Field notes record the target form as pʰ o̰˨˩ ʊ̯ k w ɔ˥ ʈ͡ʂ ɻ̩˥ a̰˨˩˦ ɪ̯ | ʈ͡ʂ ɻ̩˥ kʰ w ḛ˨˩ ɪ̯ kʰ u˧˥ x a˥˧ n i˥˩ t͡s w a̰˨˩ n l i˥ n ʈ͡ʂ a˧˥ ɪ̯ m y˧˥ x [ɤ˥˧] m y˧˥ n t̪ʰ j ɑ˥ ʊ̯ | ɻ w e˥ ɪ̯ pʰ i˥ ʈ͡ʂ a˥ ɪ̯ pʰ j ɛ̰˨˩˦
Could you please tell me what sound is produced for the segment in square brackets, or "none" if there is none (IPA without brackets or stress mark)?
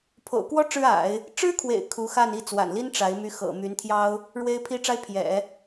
ɤ̰˨˩